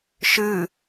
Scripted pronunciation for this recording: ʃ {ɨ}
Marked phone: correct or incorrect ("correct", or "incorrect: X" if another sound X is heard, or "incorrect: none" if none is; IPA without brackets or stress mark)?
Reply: correct